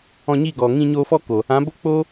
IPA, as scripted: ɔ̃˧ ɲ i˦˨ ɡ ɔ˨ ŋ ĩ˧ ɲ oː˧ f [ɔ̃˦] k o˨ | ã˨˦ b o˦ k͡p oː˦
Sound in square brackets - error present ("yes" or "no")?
yes